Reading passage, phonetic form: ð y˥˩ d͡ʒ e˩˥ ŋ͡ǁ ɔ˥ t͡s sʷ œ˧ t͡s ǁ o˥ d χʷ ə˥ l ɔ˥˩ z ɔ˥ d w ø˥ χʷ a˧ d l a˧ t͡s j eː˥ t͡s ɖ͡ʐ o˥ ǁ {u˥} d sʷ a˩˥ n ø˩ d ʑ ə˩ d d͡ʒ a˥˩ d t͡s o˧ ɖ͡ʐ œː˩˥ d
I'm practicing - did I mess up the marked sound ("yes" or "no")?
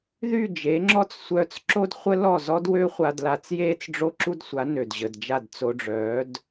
no